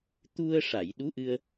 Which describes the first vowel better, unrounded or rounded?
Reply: rounded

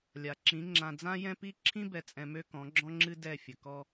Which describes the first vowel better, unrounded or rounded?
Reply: unrounded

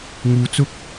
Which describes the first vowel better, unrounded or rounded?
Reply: rounded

